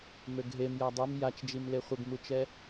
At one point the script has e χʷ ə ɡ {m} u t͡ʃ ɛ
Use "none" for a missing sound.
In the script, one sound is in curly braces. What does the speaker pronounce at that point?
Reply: m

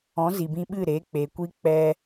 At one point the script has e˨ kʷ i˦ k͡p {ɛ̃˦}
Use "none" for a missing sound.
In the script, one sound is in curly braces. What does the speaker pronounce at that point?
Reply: ɛ˦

